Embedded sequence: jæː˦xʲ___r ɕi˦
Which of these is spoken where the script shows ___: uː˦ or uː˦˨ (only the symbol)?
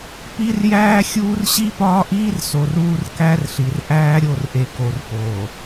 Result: uː˦